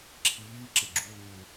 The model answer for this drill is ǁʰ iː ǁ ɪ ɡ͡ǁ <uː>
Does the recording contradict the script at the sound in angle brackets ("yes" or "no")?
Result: no